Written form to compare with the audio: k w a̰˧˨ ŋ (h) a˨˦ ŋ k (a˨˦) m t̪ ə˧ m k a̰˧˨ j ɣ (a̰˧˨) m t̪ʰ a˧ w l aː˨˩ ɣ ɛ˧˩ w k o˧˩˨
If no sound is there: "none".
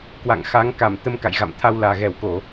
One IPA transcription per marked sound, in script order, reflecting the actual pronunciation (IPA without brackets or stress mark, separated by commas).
x, a˧˩, a̰˧˨